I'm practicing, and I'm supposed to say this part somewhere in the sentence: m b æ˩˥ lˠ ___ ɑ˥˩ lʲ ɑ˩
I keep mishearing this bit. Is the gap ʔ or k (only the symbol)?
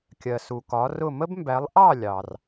ʔ